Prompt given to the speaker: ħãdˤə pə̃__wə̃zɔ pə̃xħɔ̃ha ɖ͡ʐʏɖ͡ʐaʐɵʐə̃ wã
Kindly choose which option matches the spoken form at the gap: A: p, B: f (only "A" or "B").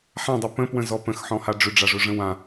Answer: A